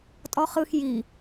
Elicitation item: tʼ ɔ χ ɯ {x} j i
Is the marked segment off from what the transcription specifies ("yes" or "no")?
no